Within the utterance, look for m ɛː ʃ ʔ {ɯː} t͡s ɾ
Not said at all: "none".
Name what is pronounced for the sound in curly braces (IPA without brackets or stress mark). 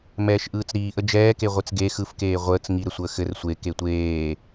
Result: ɯː